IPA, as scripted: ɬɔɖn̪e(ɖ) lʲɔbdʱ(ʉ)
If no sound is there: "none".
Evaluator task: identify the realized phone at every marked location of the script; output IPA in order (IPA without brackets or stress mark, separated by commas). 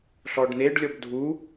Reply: ɖ, u